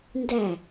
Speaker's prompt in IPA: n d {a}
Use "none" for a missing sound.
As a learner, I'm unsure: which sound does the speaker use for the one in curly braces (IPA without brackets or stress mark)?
æ